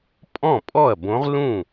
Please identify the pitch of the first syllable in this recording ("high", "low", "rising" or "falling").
falling